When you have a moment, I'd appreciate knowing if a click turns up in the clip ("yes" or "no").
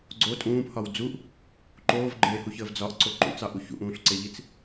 yes